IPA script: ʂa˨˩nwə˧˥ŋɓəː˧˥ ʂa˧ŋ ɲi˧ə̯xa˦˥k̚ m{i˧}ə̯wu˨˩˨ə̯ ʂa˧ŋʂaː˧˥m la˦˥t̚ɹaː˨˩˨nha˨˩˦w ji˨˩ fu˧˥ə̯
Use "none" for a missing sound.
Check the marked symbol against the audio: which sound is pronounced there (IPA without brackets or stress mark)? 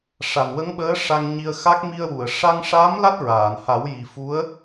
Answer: i˧